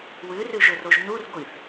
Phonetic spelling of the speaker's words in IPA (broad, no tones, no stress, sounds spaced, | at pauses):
w ʉ r ʉ ʒ ɵ r o ʒ n u r ɡʷ i θ